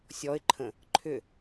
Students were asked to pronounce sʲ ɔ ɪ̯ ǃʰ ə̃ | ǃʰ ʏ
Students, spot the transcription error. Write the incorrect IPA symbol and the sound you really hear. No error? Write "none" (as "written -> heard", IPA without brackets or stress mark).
none